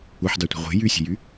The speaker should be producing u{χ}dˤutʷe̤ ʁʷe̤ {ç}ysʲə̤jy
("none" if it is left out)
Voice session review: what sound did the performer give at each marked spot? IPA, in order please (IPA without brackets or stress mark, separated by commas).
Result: ħ, j